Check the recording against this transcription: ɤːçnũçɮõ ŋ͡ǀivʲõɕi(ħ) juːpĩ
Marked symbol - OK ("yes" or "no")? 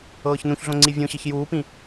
no